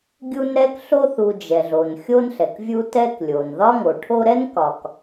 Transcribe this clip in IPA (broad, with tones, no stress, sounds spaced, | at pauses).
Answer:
ɡʲ u˦ n ɾ ɛ˥ k ɬ o˦ θ u˨ d͡ʒ ɛ˩ ɮ o˩ n xʲ o˦ n ɬ ɛ˩ k vʲ u˦ t ɛ˦ k lʲ o˩ n ð ɒ˥ ŋ o˩ ʈʰ o˦ ɾ ɛ˥ n k ɒ˨ k